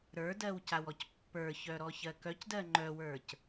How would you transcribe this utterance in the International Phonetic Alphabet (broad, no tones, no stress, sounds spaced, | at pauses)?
ɾ ə˞ d ɜ w c a w ɔ c pː ə˞ ç œ ɾ ɔ ç ɜ k œ c d ɜ ŋ͡ǃ œ w ə˞ c